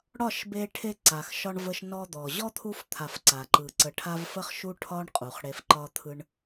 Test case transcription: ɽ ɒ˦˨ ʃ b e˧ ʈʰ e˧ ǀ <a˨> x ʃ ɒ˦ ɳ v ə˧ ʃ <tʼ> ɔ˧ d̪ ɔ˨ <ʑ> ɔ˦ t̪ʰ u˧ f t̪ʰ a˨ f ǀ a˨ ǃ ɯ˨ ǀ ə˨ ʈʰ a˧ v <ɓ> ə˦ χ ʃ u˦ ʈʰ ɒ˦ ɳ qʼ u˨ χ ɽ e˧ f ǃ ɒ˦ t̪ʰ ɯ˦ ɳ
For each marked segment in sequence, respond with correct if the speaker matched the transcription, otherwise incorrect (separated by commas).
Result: correct, incorrect, correct, incorrect